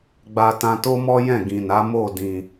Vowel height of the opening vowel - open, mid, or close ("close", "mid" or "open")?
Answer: open